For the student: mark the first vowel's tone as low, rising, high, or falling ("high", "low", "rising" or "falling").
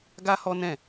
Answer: high